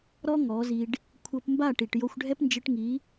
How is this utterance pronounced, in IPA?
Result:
ɾ ɔ˦ ŋ ɔ˨˦ z i˧ ɖ | kʷʰ ɤ˧ p m b a˦˨ ʈ i˨ ʈ j o˧ xʷ ɖʱ ɛ˦ p n d͡ʒ ɯ˧ ʈ ŋ i˨˦

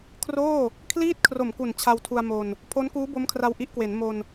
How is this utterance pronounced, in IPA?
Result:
kʰ r oː˥˩ | kʰ l iː˥˩ t̚ kʰ r o˨˩ m k u˨˩ n t͡ɕʰ a˧ w tʰ u˧ a̯ m o˧ n | pʰ o˦˥ n k uː˦˥ b o˦˥ m kʰ r a˧ w ʔ i˦˥ ʔ k w e˩˦ n m o˧ n

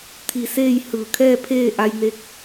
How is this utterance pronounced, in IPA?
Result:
t̪ʰ i˧˩ s eː˥˨ j h ɯː˧˩ kʰ ɛː˥˨ pʰ eː˥˨ ʔ a˧ j n e˧ k̚

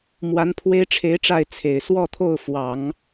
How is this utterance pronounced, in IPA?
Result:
m w a˧˥ n pʰ w e˥ ɪ̯ ʈ͡ʂʰ e˧˥ ɪ̯ ʈ͡ʂ a˥˩ ɪ̯ t͡sʰ e˨˩ ɪ̯ s w ɔ˥˧ t̪ʰ o˥˩ ʊ̯ f w ɑ˨˩˦ ŋ

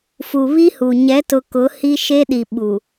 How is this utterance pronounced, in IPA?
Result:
f u˨ β i˦ h u˨ ɲ ɛ˨˦ t ʊ˨ k ʊ˨˦ h i˦ ʃ e˦ ɗ i˨ ɓ u˨

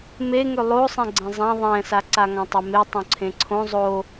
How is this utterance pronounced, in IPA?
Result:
m e ŋ ø lˠ o sˤ ẽ ɡ͡ǀ ẽ zˤ ã ðˤ ɛ̃ s a ǀ a ŋ ã tˤ ɛ m e tˤ õ ǀʰ ẽ ǀʰ õ zˤ o

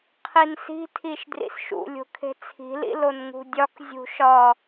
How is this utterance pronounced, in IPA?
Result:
qʰ i n s i̤ tʰ i ʃ d r ḭ s ʃ ṵ lʲ o̤ kʰ e̤ t͡sʰ i̤ l ḭ l o n ŋ ṳ dʲ ɒ k zʲ ṳ ʃ ɒ

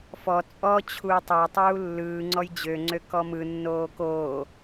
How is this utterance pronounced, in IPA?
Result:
f ɔ t͡sʼ ɔ t͡ɕʰ uː tˤ ɛ tˤ uː lː ɯː ŋ͡ǀ ɔ j d͡ʑ ø ŋ͡ǀ ø k ɔ m ɯ nː oː k oː

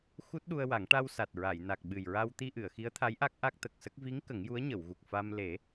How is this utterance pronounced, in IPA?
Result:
x u˦˥ t̚ ɗ u˧ ə̯ w a˨˩˦ ŋ ʈ a˧ w s a˨˩ t̚ ɹ a˨˩˨ j n a˨˩ k̚ ɓ ɨ˨˩ j ɹ a˧ w t̪ i˧ ʔ ɨ˨˩˨ ə̯ x i˧˥ ə̯ t̪ʰ a˧˥ j ʔ a˦˥ k̚ ʔ a˦˥ k̚ t̪ ə˨˩ k̚ s ə˦˥ k̚ v i˧˥ ŋ k ə˨˩˦ ŋ j u˧˥ ə̯ ɲ ə˨˩˨ w ɣ u˨˩ k̚ f a˧ m l e˨˩˦

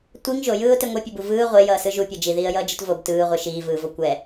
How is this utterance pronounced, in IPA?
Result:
tʷ i ŋ ʒ o j ɯː ʊ̯ t e ŋʷ ɛ pʲ ʌ b u v ɯː ʁʷ e j ʌː s ɯ ʒ u pʲ ʌ d͡ʒ i ð iː ə̯ j ʌː d͡ʒ ɯ t v o b t ɯː ʁʷ ɯ ʃ iː v ɯː v o kʷ ɛ

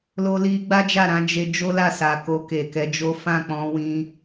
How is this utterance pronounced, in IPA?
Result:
l o˧ l i˧ ɡ͡b a˦ d͡ʒ a˦˨ ɾ ã˨˦ d͡ʒ e˧ d͡ʒ o˦ l a˦˨ s a˨ k o˧ k e˨ k ɛ˨˦ d͡ʒ o˦ f ã˦˨ k͡p ɔ̃˧ w ĩ˧

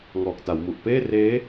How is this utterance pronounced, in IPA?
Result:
ŋ ɔː˨˩ k̚ t a˩˦ w m u˨˩ ʔ p eː˥˩ r eː˦˥

